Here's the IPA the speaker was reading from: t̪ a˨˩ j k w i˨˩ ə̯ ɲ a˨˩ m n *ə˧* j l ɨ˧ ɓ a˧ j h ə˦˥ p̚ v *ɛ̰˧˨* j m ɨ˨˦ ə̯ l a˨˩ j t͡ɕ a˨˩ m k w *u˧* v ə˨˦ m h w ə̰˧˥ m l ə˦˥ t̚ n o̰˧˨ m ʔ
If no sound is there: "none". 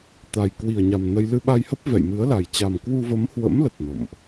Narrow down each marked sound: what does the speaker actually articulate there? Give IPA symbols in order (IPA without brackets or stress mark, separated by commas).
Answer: ə˧, ɛ̰˧˨, u˧